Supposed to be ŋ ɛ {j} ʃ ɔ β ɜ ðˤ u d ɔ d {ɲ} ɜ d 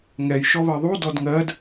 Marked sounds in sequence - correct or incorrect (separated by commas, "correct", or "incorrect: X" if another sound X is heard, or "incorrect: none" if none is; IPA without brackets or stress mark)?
correct, incorrect: ŋ